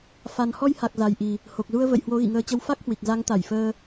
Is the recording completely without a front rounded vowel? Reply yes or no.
yes